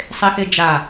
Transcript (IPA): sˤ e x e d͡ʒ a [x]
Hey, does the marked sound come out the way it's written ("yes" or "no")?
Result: no